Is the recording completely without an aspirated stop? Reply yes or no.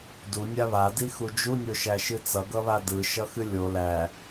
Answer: yes